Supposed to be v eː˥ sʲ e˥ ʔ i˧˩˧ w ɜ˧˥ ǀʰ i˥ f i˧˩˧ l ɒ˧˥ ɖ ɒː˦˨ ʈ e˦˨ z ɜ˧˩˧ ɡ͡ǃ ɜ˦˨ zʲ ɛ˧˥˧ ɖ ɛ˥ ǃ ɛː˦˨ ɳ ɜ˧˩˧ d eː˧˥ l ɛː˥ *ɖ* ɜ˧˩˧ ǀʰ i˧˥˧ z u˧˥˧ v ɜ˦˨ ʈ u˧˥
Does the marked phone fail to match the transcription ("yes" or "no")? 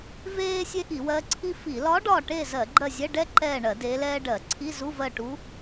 no